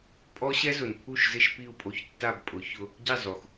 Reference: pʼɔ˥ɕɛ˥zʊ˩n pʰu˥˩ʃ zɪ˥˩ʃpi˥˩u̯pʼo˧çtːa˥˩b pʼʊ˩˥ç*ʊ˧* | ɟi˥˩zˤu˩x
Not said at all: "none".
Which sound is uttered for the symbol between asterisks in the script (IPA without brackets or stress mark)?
ʊ˧